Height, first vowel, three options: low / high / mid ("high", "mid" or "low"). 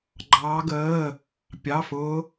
low